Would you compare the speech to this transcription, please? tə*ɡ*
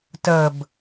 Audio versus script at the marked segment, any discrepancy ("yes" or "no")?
yes